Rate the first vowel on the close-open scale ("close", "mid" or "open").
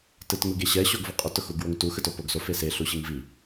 close